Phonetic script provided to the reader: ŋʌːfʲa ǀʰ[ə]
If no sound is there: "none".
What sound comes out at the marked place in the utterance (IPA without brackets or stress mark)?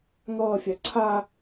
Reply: a